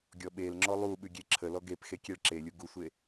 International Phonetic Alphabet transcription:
ɡʲɔɓelŋ͡ǁɔ lˠuɓʉ ɡʲeǁʰəlɔ ɡepxe kʲeɭǁelʲu ɡusʷe

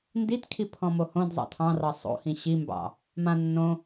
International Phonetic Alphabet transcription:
nditkʰi pʰɔ̃mohõdzˤɑ̰ tʰɑ̃rɑ sˤo̰hĩ ɕimbɑ̰ | mã nːõ

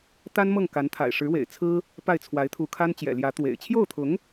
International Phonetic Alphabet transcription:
t̪a˥nmɤ˥˩ŋ ka˧˥nt̪ʰa̰˨˩ɪ̯ ʂɻ̩˧˥wḛ˨˩ɪ̯ t͡sʰɹ̩˥ | pa˥˩ɪ̯t͡sʰwa˧˥ɪ̯t̪ʰu˧˥kʰa˥n t͡ɕjɛ̰˨˩ljä˧˥ t̪wḛ˨˩ɪ̯ t͡ɕʰjo˥˩ʊ̯t̪ʰʊ˧˥ŋ

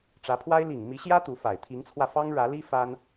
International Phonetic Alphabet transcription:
ʈ͡ʂä˧˥pʰwa˥ɪ̯ li˨˩ŋ mi˧˥ɕjä˥ t̪u˧˥fa˨˩ɪ̯ t̪ʰi˧˥ŋt͡sʰwä˧fɑ˥ŋ ɻä˧˥li˥ fa˥n

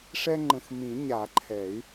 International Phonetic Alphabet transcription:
ʂɛ˦ŋ͡ǃə̃˨xmĩ˨˩˦ ɲa˨˩˦ǃʰɛ˨˩˦y̯

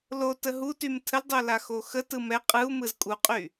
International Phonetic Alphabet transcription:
lo təɦutym tʰəldˤo laxoxətɯ mɛ qʼɯu̯mɯz kʼuqʼy

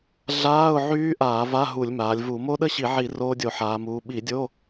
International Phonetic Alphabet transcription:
ɮaː˧˥˧ʊ̯ ʕyː˦˥ʔaː˧˩˧ va˧˥˧ ɦu˧˩˧lʲmaː˩˧lʲvu˧˩˧ mo˦˥ɗə˥˧ɕi˧˩˧ʕi˧˩˧ roː˦˥dʲo˧˩˧ħaː˩˧muː˩˧ ɓi˧˩˧dʲo˧˥˧

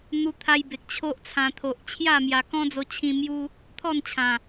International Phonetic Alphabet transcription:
n̪u˧t̪ʰa˧jbe˨k̚ t͡ɕʰo˦ʔt͡sʰã˧ t̪ʰo˨ʔt͡ɕʰja˥˧ mja˧ kɔ̃˦d͡zo˧t͡ɕʰĩ˧ mju˦ | t̪ʰɔ˥˧nt͡ɕʰã˨˩

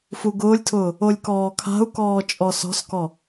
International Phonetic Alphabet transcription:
fuɡʊːlʲtʰʊː | olʲkɔːkʰa̤u̯kɔː t͡ʃʼɔsɔ̤skɔ

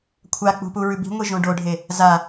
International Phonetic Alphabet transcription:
kʷʰak͡pṳ puɹʉbi̤ŋʷi ʒõɖoɖʱe | za

